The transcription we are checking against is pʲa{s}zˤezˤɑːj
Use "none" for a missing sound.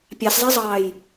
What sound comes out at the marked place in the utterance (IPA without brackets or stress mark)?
s